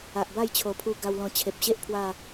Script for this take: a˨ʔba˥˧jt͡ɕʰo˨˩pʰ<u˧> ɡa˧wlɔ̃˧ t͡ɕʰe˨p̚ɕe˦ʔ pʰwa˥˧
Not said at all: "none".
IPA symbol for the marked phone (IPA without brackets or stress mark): u˧